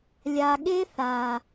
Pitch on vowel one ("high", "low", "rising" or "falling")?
low